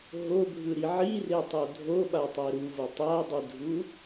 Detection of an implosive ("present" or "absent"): present